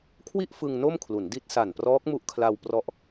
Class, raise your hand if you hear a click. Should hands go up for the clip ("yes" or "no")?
no